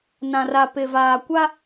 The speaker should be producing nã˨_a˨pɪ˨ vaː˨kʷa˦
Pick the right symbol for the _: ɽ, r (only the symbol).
r